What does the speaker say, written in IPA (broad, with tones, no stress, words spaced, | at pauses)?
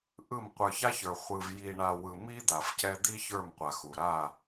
ʔɯ˦˨m qʷə˞˨ça˦çə˞˨ χʷɯ˨vji˨ɳa˨ wɯ˨mi˦ d̪a˨fcɛ˦ d̪i˦ çə˞˦˨mqʷa˨xu˨ ɾa˦˨